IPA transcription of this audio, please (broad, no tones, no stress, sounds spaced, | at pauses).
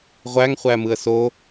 ʁʷ æ ŋ χʷ æ m ɯ ə̯ s o